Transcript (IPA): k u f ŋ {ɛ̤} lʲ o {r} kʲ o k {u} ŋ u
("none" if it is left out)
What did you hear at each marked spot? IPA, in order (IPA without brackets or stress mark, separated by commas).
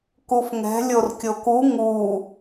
ɛ̤, r, u